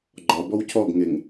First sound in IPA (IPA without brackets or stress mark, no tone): ɡ͡ǃ